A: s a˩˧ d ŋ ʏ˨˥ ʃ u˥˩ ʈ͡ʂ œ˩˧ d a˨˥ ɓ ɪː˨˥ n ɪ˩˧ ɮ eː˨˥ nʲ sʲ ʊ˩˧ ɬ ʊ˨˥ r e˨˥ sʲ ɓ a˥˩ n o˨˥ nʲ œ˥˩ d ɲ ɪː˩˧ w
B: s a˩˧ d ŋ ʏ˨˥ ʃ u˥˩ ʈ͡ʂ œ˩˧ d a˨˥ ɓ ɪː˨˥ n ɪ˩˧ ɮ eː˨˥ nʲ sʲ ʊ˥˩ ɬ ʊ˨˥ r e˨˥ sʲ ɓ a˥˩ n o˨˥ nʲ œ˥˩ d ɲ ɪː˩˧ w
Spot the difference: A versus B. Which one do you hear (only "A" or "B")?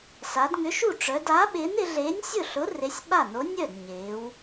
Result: B